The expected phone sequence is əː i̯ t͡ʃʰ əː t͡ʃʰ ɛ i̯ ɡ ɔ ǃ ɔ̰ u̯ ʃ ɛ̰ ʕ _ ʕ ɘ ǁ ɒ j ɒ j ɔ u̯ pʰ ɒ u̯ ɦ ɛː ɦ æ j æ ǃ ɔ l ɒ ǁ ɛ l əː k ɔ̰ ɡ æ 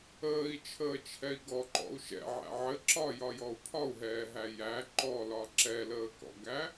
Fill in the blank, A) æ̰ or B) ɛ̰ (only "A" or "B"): A